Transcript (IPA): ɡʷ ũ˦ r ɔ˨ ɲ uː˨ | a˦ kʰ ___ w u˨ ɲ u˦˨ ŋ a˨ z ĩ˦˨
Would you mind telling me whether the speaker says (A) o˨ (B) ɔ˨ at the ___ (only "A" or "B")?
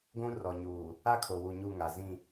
A